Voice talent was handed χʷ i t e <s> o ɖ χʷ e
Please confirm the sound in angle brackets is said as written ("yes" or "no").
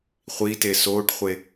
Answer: yes